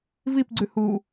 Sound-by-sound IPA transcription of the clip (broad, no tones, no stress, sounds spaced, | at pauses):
v i p ɡ͡ǀ ʉ h u